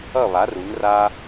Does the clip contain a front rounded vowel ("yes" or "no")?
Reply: no